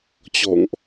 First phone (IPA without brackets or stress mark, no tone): t͡ɕ